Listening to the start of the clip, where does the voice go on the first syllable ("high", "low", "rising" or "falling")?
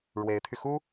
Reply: rising